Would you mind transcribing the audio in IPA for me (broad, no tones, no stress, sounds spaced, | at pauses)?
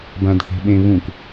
b ã d θ e̤ ɓ ẽ β ũ k